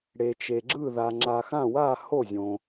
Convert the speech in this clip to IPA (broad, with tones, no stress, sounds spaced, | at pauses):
ɽ e˩ t͡ʃ e˩ ɡ͡ǁ ɯ˧˩ ð a˩ ŋ͡ǁ a˩ x ã˧˩ w a˧˩ h o˧˩ zʲ õ˩